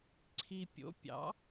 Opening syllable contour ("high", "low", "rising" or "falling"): low